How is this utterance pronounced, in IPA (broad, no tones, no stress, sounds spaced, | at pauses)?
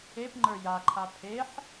e p ŋ͡ǃ ə˞ j a ǃʰ a pʰ e ħ